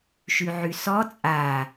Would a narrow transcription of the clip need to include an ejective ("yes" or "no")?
yes